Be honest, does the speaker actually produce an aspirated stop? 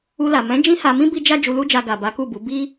no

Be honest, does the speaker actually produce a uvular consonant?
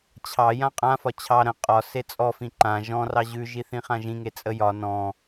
yes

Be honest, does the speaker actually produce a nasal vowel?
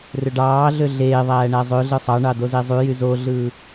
no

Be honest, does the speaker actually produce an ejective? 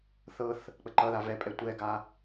yes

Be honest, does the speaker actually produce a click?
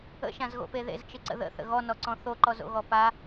yes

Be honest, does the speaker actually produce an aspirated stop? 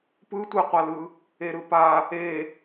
no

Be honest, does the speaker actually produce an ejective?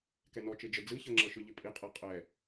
yes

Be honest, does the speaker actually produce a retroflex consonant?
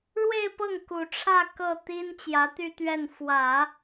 yes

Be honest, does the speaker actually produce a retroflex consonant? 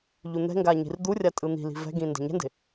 no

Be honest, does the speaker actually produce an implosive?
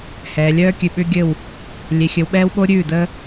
yes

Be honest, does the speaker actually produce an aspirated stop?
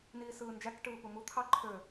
yes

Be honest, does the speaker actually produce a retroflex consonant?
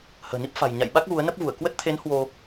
no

